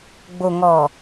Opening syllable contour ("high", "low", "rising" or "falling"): low